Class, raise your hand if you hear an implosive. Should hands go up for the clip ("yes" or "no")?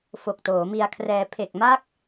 no